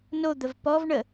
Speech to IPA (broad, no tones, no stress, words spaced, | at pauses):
nod̪əv pɔvɳə